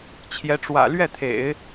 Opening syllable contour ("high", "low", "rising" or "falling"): rising